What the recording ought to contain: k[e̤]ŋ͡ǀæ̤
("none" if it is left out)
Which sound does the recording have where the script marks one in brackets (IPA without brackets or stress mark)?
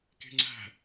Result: e̤